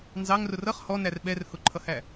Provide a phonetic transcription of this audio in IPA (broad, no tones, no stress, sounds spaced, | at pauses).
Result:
n z ɑ ŋ r ʊ r ʌ χ h ɔ n æ r ɓ ɛ r h ʊ ǃʰ ʌ h æ